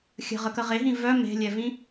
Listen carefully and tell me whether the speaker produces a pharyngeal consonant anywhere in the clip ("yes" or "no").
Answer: no